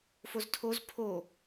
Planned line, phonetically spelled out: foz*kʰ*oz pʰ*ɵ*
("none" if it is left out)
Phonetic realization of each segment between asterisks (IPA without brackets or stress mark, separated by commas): tʰ, o